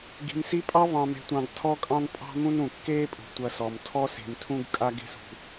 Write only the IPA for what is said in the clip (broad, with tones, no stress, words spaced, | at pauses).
ɡi̤˨msi˦pʼɑ˥ vɑ̃˨me̤˨tʷɑ̃˨ɡ tʰɔ˦kʼɑ̃˦n pʼɑ̤˦mũ˦nũ˩ kːeː˦pʼṳ˩tʷɐ˨sɔ˩m tʰɔ˦se̤˨mtʰũ˦ɡkʼa˦ɡ e̤˦sṳ˨